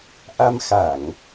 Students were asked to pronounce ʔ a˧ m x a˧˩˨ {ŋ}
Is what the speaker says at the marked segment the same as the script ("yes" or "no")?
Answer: yes